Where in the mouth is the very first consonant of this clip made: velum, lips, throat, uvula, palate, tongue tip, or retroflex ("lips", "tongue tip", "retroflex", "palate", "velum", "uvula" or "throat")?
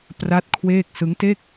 lips